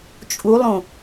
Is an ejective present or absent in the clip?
present